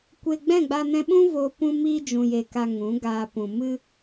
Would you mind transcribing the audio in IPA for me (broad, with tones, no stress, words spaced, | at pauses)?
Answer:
kʷe˧ ɡ͡bɛ̃˦˨ɡ͡ba˧nɛ̃˧ɓũ˦ vo˧ pũ˧ miː˧d͡ʒũ˨je˨ ka˧ŋũ˨˦ ɡaː˧ pũ˨mɨ˧